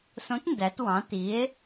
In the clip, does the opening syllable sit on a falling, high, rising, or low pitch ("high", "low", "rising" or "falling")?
rising